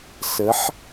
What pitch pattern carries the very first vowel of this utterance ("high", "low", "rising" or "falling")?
rising